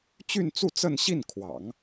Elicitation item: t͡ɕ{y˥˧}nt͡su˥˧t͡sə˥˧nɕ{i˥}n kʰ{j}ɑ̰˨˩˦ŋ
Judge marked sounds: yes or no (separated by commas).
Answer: yes, no, no